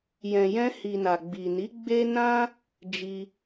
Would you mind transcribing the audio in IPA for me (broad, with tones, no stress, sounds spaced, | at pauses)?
j ɛ̃˨ j ɛ̃˧ h i˨ n a˨ ɡ͡b i˨ n i˨˦ ɡ͡b e˦ n ã˦ | d͡ʒ i˧